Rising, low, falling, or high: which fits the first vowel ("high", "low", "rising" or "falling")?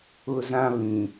high